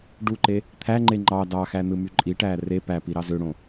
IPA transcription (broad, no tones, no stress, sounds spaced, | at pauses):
ɖ u ǃ e | t̪ʰ æ ŋ͡ǃ e ŋ͡ǃ ɑ d ɑ x æ n ɯ m y ǃʼ i ʈ æː r e p æ p i ɾ ɑ z ø ɽ õ